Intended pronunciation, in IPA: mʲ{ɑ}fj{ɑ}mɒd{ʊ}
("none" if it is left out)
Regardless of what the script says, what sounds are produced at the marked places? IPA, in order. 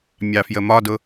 ɑ, ə, ʊ

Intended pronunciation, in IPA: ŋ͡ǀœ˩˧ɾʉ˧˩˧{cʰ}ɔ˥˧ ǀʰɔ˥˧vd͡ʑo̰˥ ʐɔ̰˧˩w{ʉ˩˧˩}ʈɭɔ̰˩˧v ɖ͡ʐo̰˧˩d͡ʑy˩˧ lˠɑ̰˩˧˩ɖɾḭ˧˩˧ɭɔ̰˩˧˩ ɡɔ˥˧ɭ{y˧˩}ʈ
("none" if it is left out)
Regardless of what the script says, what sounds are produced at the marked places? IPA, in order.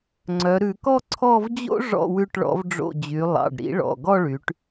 k, ʉ˧˩, y˩˧

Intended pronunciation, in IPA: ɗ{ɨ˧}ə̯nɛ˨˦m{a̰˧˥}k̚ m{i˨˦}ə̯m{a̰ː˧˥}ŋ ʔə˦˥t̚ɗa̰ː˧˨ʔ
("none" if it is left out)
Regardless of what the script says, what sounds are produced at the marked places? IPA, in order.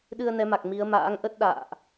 ɨ˧, a˨˩, i˨˦, a̰ː˧˥

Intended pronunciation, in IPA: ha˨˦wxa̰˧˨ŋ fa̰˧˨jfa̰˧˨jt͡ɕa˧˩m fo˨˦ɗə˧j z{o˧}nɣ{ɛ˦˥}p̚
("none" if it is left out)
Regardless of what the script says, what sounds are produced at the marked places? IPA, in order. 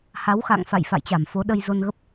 o˧, ə˦˥

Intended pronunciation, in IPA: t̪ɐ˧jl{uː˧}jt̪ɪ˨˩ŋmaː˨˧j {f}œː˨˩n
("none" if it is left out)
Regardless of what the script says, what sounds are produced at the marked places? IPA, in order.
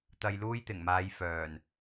uː˥, f

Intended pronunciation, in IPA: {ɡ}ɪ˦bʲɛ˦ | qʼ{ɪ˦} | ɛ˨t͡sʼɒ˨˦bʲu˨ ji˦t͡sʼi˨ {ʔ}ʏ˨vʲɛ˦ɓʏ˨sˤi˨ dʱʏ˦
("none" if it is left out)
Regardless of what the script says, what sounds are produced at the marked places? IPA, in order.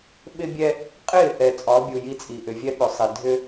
ɓ, ɪ˦˨, ʔ

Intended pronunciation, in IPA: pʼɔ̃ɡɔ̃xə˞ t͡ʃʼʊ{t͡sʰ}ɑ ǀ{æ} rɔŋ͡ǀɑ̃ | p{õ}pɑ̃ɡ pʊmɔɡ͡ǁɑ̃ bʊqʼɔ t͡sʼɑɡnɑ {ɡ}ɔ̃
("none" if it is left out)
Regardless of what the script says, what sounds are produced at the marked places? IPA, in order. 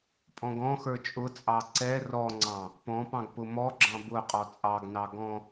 t͡sʼ, ɛ, ɔ̃, ɡ

